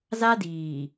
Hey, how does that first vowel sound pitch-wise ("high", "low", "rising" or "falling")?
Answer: high